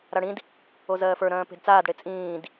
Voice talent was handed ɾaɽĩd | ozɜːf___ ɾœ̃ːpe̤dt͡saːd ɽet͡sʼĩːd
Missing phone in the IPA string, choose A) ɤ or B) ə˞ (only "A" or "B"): B